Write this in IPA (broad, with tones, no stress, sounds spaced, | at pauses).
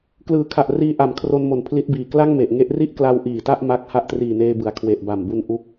k l ɯː˨˩ kʰ a˨˩ ʔ r iː˧ ʔ a˨˩ m kʰ r o˧ n m o˨˩ n pʰ l i˦˥ t̚ b iː˨˩ k l a˥˩ ŋ m e˨˩ ʔ ŋ e˦˥ ʔ r i˥˩ ʔ k l a˧ w ʔ iː˨˩ t a˥˩ ʔ m a˦˥ k̚ h a˦˥ ʔ t r iː˨˩ n eː˧ b ɯ˩˦ a̯ kʰ w e˨˩ ʔ b a˨˩ m b u˧ n ʔ u˦˥ k̚